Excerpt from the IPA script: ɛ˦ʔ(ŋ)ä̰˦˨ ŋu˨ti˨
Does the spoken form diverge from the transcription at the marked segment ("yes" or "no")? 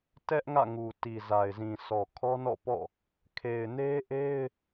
no